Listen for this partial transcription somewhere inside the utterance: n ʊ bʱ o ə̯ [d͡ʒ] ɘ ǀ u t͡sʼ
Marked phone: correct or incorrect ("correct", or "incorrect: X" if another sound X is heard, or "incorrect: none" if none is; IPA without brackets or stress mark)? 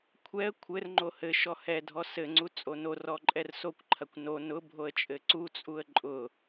incorrect: t͡ʃʼ